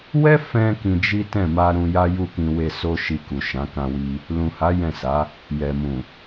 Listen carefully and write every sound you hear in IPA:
wɛ˦ fɛ̃˧ kĩ˧d͡ʒi˦ tɛ̃˦˨ma˧ ɾũ˦ ja˦ju˦˨kĩ˧ we˧so˦ʃi˧ku˨ ʃã˨˦kã˧wi˧ | lũ˨ha˨˦ jɛ̃˦˨sa˨˦ | jɛ˨mũ˨

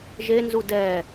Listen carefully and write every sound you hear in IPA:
ʒenzu dɛ

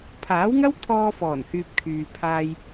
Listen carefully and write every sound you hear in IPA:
pʰaː˨˥wŋɐ˥wt̪ʰɔː˧fɔː˨˩n hyː˧p̚kʰyː˨ pʰaː˧j

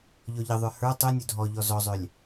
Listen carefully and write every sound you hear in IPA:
ʎɔʎəðˤə˞ hə˞ tˤunʲɵ dʱɔʎɔ zɔzˤœlʲ

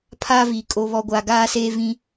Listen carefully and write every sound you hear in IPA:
pʰaː˦viː˨ kʼo˨βɔ˨ɡʷaː˨ ɡaː˦seː˦ vĩ˦

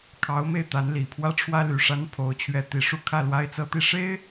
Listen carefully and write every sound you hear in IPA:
kʰɑ˧˥ʊ̯me˥˩ɪ̯ t̪a˧˥nli˨˩pʰwä˥ ʈ͡ʂʰwä˥ly˨˩ ʂa˥npʰo˧˥ʊ̯t͡ɕʰɥɛ˧˥ t̪i˨˩ ʂu˥˧kʰä˥˩ lwa˥ɪ̯t͡sɤ˥t̪i˥˩ ʂe˥ɪ̯

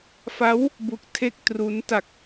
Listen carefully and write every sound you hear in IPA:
fa˦˥w | bu˦˥k̚tʰe˥˩k̚tru˦˥n ta˨˩k̚

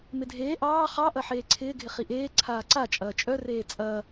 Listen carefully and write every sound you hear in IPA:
mɪdʱeː ʔɑː χɑʔɐ ħeːǀʰɪːɡʱɪ χiʔeː ǀʰaːǀat͡ʃʼɐː t͡ʃʼœreː t͡sʼɐː

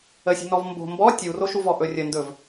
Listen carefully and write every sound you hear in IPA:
əsʲṳnɔv mbo̤ mbɔ tʲuroʃuvɔ ʔɵrʲə ndɵv

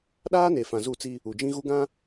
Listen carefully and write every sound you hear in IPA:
ɗaː˦ne˨ fã˨zu˦˨t͡si˦ | u˨d͡ʒĩ˦ɣu˦ ɡã˦

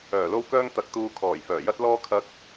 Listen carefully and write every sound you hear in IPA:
œː˨˩lo˥wkœː˥ŋ t̪ɐ˧k̚t̪uː˧ kʰɔː˨˩jfœː˨˩jɐ˥t̚lɔː˥ kʰɐ˥k̚

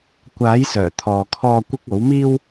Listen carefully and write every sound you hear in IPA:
kʷaː˨˥jsœː˨˩ t̪ʰɔː˨kʰɔː˧ kʷɪ˥k̚ o˨˥wmiː˥w

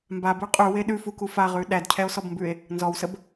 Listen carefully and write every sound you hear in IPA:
mbabʉ qʼʉwe ɗʉfuku faʁʉ ɗædcʰɛo̯sɔbmbʉe̯ | nzɔwsəb

